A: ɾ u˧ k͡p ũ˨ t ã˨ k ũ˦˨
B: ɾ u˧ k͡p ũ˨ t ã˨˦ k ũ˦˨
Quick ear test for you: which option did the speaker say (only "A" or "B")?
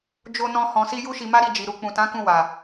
B